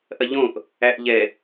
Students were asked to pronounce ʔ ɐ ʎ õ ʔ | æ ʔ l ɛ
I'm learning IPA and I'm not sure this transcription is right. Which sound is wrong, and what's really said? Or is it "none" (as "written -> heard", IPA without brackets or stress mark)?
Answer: l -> ʎ